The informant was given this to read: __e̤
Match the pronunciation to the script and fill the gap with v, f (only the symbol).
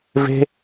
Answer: v